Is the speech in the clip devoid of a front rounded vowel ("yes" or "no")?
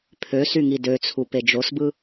no